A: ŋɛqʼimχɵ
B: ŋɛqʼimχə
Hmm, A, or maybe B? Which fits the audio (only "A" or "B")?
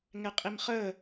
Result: B